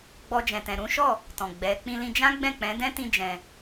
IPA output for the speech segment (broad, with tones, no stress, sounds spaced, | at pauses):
ɡ͡b ɔ˧ d͡ʒ ɛ̃˨ t ɛ̃˨ ɾ ũ˨˦ ʃ ɔ˦˨ | t ɔ̃˨ ɡ͡b ɛ˨˦ k͡p ĩ˧ l ĩ˧ d͡ʒ ã˦ ɡ͡b ɛ̃˦˨ k͡p ɛ̃˨˦ d ɛ̃˦ t ĩ˦ d͡ʒ ɛ̃˧